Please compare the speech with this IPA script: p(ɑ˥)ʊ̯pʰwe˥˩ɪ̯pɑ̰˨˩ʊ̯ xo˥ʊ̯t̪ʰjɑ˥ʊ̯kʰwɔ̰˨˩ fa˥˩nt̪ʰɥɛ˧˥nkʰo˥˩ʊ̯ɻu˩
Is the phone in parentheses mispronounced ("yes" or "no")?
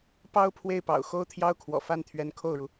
no